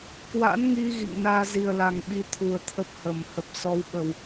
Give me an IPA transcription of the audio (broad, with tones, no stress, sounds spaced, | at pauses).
k w a̰˧˥ n ŋ i˧ ɣ ḭ˧˨ ŋ n aː˧ z i˨˩ ə̯ l a˨˩ ŋ ɓ i˨˦ t̪ʰ u˨˩ ə̯ t̪ʰ ə˦˥ p̚ h ə˨˩ m h ə˨˩ p̚ s ɔ˧ w ɓ ə˨˩ w